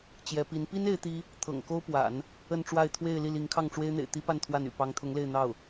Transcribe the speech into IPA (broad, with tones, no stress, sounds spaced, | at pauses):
t͡ɕ j ɛ˧˥ p i˧˥ n p i˥ n e˥ ɪ̯ t̪ i˥ | t̪ʰ ɤ̰˨˩ ŋ k o˥ ʊ̯ p w a̰˨˩˦ n | ə˥˧ n ʈ͡ʂ w a˥˧ ɪ̯ t̪ʰ w e˥˧ ɪ̯ l i˥˩ l i˧˥ ŋ kʰ ɑ˥˩ ŋ ʈ͡ʂ w e˥ ɪ̯ n̪ ḛ˨˩ ɪ̯ t̪ i˥ p a˥˧ n t̪ʰ w a˥˩ n y̰˨˩ p ɑ˧˥ ŋ t̪ʰ ʊ˧˥ ŋ l e˥˧ ɪ̯ n̪ ɑ˥˩ ʊ̯